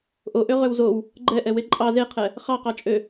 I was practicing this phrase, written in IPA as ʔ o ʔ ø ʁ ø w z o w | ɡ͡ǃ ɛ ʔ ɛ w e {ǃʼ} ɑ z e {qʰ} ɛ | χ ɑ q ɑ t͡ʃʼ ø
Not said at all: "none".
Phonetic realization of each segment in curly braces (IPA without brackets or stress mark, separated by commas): ǃʼ, qʰ